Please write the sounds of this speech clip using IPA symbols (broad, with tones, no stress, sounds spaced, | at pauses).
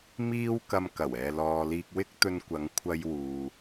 m iː˧ w k ɐ˨ m k ɐ˨˩ w ɛː˨ l ɔː˨ l iː˧ k̚ w ɪ˥ k̚ t̪ ɵ˧ n kʷ ɐ˨˧ ŋ kʷʰ ɐ˧ j w uː˨